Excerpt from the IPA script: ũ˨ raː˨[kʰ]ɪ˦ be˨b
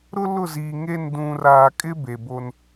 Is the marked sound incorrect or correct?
incorrect